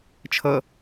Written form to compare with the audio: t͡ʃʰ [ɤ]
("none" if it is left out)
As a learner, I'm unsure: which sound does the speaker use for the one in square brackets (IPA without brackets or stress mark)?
ɤ